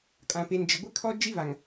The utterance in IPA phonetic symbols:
kʼ ã˨ p e˨ n d͡ʒ ɪ˨ ɡʷ ɪ˦ kʰ ɔ˦ d͡ʒ i˦ β a˨ ŋ

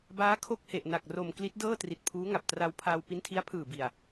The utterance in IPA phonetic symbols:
b aː˦˥ kʰ o˥˩ k̚ h e˨˩ ʔ n a˨˩ k̚ r o˨˩ m k l i˦˥ t̚ d ɤː˥˩ t r i˨˩ t̚ pʰ uː˦˥ ŋ a˨˩ p̚ t r a˧ w pʰ aː˧ w p i˦˥ n tʰ i˦˥ a̯ pʰ ɯː˨˩ b i˨˩ a̯

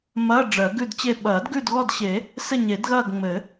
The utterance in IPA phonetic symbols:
m ɐː˧˥˧ ɖ͡ʐ ɜ˨˩˦ ɡ ʉ˦˨ d t͡ɕ e˦˨ ɓ ɐː˨˩˦ d ɡ ʉ˦˨ d ɣ ɔ˦˨ d ɕ e˨˩˦ | s ɘ˦˨ ɲ e˨˩˦ d ɣ ɐː˦˨ ɡ ŋ͡m ɘ˨˩˦

